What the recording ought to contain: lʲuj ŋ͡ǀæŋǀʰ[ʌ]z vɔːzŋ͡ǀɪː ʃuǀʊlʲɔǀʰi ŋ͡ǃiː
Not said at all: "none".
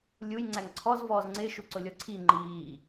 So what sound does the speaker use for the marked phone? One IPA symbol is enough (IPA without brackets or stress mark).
ɔ